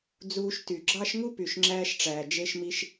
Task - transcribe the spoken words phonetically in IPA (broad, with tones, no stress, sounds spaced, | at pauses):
d͡z uː˧ ʃ t y˩ ɡ͡ǁ ɑ˥ ʃ ŋ u˥ p y˩ ʃ ŋ͡ǁ æː˧ ʃ ʈ͡ʂ æː˩ d͡ʒ e˧ ʃ m i˧ ʃ